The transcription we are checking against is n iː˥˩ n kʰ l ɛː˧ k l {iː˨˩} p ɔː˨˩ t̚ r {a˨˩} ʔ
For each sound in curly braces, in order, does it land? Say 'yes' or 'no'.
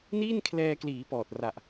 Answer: no, yes

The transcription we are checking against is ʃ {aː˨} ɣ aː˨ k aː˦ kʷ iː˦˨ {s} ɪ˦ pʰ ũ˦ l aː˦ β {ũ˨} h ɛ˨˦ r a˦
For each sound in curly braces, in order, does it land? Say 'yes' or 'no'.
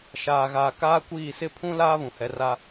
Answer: yes, yes, yes

